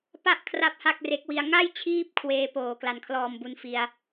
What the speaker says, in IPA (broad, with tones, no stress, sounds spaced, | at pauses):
p a˥˩ ʔ kʰ r a˥˩ p̚ h a˥˩ k̚ r e˦˥ k̚ w i˧ a̯ ŋ a˥˩ j t͡ɕʰ iː˦˥ p̚ kʰ w eː˧ p oː˨˩ k l a˨˩ n kʰ l ɔː˨˩ m b u˧ n f i˧ a̯